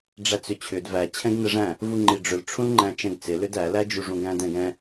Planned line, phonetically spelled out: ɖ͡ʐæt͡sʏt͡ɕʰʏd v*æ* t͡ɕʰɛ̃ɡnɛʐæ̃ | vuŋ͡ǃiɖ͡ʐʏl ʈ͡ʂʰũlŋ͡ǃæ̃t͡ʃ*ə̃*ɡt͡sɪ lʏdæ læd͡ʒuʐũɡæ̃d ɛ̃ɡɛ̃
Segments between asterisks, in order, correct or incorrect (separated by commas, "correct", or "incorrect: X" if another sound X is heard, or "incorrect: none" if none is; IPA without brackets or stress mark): correct, incorrect: ɛ̃